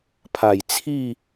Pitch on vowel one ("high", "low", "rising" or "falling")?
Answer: low